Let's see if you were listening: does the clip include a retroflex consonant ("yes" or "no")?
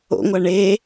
yes